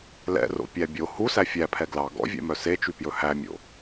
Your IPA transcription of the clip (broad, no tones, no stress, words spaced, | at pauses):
lɛ̰ro̰pʲæ bʲo husæ fʲæpʰɛ ɡlɑ ɡɔ̰vʲɛ̰mœ set͡ʃypjɵ hæmʲo̰